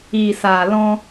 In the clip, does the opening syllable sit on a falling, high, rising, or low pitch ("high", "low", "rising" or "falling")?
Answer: low